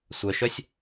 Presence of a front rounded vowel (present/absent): present